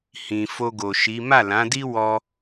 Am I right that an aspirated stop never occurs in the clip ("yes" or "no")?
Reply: yes